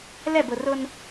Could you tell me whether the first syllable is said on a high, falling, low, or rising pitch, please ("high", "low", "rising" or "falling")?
falling